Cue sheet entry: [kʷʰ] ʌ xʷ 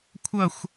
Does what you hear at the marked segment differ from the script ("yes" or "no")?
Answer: no